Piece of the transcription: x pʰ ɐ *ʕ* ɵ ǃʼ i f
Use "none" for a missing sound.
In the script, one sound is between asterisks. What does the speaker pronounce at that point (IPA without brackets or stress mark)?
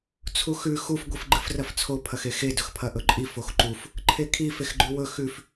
ʔ